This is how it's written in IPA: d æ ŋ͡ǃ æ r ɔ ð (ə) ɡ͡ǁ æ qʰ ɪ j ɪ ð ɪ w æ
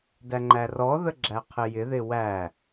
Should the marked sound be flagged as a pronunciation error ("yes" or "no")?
no